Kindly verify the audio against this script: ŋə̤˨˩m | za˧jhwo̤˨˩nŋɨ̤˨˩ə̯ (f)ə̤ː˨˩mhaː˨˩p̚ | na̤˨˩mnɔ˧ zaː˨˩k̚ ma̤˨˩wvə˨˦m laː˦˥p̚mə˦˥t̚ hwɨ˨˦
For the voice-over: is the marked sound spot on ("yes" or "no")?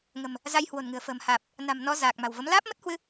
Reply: yes